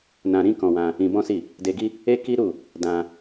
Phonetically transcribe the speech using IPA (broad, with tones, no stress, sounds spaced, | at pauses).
n ã˧ ɾ ĩ˦ k ɔ̃˧ w ã˧ | ĩ˧ b ɔ̃˦ s i˦˨ | d e˧ ɡ i˦ | e˦ k i˦ ɾ u˦˨ | d ã˧